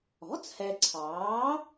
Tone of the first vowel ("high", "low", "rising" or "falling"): rising